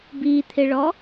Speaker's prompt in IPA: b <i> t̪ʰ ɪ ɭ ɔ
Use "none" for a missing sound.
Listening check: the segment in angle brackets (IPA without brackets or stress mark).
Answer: i